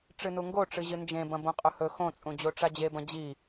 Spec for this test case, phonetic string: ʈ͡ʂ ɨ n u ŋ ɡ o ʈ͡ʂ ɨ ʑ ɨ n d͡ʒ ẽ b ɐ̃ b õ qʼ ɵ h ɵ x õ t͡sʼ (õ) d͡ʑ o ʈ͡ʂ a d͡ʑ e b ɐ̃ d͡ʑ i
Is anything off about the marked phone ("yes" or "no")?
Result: yes